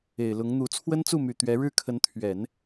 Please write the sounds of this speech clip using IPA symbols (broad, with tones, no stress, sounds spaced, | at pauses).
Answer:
e˨˩ ɪ̯ l ʊ˧˥ ŋ n̪ u˧˥ t͡sʰ w ə˥ n t͡s u˥˩ m y˨˩ t̪ ɥ ɛ˧˥ ɻ ɻ̩˥˩ kʰ ə˧˥ n t̪ʰ ɥ ɛ˨˩˦ n